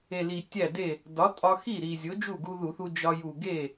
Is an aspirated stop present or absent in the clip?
absent